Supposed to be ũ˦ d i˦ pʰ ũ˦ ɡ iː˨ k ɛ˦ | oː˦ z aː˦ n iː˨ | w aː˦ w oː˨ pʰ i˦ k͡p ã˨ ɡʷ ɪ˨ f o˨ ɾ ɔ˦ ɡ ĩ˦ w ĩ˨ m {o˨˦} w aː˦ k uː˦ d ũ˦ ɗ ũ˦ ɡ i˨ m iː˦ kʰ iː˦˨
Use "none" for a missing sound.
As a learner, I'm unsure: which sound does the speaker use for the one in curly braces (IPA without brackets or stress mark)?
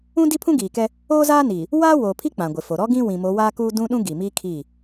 o˨˦